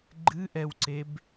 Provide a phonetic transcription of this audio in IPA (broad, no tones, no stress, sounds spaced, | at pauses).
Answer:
ɡ͡ǃ ɨ ʔ ɛ w ǀ e b